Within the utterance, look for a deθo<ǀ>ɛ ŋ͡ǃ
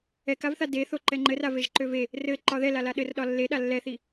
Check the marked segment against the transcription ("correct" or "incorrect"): incorrect